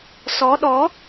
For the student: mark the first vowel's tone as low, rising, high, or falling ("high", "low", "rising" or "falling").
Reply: rising